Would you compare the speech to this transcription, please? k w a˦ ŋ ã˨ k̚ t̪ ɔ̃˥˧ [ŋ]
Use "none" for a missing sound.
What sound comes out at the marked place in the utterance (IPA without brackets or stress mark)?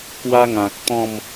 m